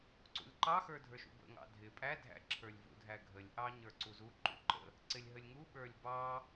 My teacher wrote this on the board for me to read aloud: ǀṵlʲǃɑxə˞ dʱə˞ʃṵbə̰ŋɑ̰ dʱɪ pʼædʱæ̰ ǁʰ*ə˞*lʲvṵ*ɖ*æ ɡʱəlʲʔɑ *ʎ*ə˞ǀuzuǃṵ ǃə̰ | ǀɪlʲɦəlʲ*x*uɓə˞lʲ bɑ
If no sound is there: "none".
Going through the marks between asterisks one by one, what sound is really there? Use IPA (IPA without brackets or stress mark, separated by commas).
ə˞, dʱ, ɲ, ŋ